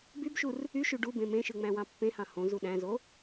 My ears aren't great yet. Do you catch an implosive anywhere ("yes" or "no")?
yes